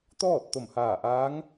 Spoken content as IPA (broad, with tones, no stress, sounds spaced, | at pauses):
t̪ ɔː˥˨ t̚ t̪ o˧˩ m h aː˧˩ ʔ aː˧˥ ŋ